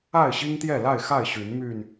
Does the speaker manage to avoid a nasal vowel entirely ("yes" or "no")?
yes